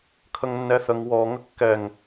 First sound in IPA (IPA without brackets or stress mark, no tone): kʰ